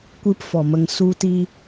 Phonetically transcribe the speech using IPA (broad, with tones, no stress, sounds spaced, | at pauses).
kʷ ɨ˦ p f ɔ˨ m ə˧ ŋ s u˦ t i˦